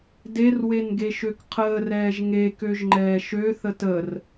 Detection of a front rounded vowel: present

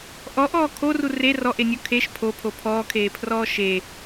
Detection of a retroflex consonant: absent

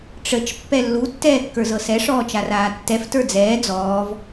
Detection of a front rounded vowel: absent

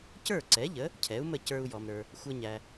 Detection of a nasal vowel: absent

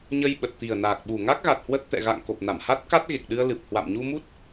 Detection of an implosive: present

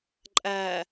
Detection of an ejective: present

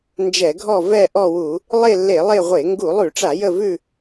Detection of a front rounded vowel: absent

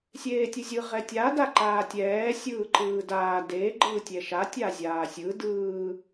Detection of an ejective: absent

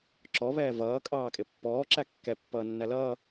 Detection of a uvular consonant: absent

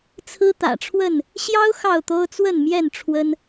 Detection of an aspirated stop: present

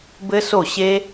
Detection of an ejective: absent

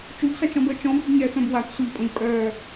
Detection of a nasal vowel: present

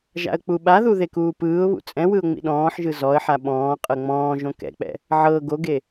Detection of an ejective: present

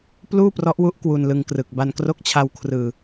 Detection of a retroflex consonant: absent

